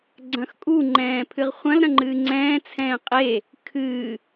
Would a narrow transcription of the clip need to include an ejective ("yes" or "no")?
yes